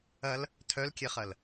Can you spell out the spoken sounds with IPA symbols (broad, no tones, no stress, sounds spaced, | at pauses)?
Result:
ɐ l | tʰ œ l kʲ e χ ɐ l